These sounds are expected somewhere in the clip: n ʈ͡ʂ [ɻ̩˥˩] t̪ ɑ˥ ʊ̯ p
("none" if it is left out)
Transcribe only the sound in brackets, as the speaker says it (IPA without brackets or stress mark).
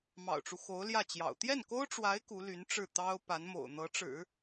ɻ̩˥˩